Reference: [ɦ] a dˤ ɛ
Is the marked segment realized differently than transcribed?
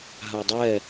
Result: no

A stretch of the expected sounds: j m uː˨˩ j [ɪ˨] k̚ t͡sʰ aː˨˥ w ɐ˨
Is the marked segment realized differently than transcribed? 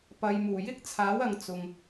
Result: yes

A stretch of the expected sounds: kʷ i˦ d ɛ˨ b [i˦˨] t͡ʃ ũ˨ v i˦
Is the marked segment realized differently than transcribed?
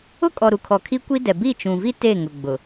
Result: no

